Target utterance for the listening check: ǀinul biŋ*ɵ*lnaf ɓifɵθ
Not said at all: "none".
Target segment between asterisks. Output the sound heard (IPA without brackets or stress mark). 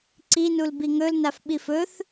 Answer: ɵ